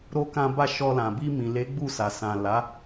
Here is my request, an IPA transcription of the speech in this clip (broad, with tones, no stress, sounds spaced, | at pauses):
ɾ o˧ k ã˧ b a˧ ʃ ɔ˧ l ã˨ b i˧ m ĩ˨ l e˨˦ ɡ͡b u˦˨ s a˨ s ã˨ l a˨˦